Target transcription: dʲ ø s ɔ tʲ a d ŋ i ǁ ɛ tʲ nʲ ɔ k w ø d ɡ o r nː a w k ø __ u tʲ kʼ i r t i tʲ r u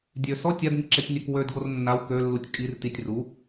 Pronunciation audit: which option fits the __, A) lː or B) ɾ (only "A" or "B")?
A